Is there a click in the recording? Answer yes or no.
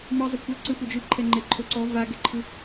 yes